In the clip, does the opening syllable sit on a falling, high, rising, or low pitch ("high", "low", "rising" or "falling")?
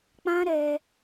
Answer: high